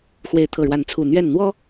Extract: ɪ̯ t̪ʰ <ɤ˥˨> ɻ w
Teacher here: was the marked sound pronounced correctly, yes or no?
no